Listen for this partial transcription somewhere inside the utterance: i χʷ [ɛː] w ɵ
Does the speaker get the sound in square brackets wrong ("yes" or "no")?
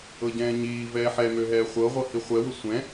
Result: yes